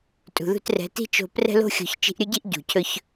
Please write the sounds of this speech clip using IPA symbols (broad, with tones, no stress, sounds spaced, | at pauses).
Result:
tʼ ṳ˨ ð ṳ˧ t r ɛ̤˨˦ t i̤˦ t͡ʃ o̤˧ p r ɛ̤˦ l o̤˦ xʲ o̤˧ ç t͡ʃ i̤˧ ʔ ɾʲ ɵ˦ ɟ i˦ ʔ ɟ ṳ˨ cʰ ɵ˦ ç